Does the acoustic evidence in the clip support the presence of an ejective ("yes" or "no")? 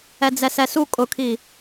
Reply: yes